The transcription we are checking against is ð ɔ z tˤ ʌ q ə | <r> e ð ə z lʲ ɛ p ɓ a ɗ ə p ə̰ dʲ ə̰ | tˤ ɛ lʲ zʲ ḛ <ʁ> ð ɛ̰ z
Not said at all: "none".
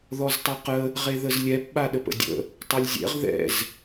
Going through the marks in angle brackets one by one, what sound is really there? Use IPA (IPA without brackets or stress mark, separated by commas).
ʁ, ʁ